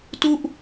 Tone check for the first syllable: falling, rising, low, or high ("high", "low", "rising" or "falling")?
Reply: falling